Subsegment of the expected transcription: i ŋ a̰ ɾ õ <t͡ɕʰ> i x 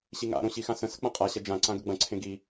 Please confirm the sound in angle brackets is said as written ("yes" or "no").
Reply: no